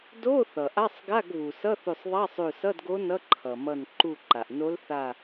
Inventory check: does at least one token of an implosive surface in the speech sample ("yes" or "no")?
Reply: no